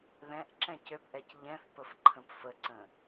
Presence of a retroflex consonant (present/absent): absent